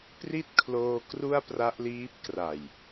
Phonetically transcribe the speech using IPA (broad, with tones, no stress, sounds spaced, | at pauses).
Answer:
p r i˥˩ t̚ kʰ l oː˧ k r u˥˩ a̯ p r a˦˥ ʔ l iː˦˥ p̚ k r a˨˩ j